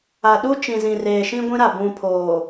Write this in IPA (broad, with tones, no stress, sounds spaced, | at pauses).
a˨ ɗ u˦ t͡ʃ ĩ˨ z ĩ˨ r eː˨ ʃ ĩ˦ ɡʷ ĩ˦ ɾ a˨ b ũ˨ pʰ oː˨